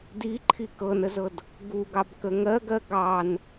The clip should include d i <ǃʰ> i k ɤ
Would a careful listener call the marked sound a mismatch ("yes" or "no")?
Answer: no